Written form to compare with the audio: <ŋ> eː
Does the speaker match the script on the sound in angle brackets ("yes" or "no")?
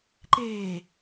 no